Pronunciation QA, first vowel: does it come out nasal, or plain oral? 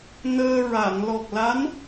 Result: oral